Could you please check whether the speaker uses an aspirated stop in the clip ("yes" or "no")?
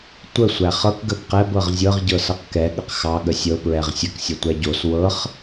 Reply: no